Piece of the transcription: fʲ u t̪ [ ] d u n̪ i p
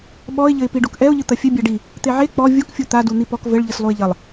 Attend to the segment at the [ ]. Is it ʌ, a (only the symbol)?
a